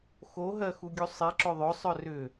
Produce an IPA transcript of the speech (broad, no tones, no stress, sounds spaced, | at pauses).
x o ɦ ɜ x u ɡʲ u sˤ i ǁ ʏ ðˤ ɵ sˤ œ r ʏ